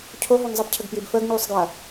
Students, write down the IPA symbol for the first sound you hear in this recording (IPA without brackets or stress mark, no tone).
cʰ